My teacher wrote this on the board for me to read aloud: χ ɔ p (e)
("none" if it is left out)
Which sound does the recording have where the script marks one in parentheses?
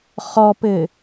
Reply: ɘ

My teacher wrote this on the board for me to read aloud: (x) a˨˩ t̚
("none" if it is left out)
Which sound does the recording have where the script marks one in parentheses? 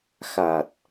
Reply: x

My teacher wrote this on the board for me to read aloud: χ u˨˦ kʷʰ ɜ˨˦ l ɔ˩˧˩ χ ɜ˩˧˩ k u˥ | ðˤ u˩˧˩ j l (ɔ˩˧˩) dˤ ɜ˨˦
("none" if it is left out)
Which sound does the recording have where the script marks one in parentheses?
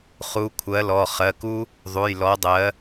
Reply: ɔ˨˦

